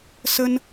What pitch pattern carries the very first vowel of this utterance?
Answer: high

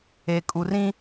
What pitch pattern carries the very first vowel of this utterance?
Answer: low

